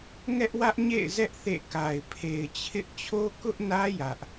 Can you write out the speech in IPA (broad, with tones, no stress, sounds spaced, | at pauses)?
ŋ ɛ˦ ʔ w ä˦ ʔ ɲ ḛ˦˨ ɪ̯ z ɛ˦ ʔ θ ḛ˦˨ k a˨ ɪ̯ pʰ e˨ ɪ̯ t͡ɕʰ ɪ˦ ʔ t͡ɕʰ o˦ k ʊ˦ ʔ n ä˦ j ä˦ ʔ